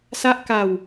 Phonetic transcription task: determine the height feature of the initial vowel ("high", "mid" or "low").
low